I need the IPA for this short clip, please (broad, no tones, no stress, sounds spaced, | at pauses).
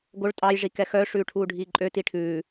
ɡ o ɭ tʼ ɑ j ʐ i k ɛ x œ ʂ ʉː ʈʰ uː ɖʱ iː ǃʼ ø t i ʈʰ ʉː